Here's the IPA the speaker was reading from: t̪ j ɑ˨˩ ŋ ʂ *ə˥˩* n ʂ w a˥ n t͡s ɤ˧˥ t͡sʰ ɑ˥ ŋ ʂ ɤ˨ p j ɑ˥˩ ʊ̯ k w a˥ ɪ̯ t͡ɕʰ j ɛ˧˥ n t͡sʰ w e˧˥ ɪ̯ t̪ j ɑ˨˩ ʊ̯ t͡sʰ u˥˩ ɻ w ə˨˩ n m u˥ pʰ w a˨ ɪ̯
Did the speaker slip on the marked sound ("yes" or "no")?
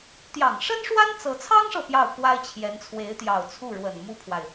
yes